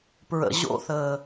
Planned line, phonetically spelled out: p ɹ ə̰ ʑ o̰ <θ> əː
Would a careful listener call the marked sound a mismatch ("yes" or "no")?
no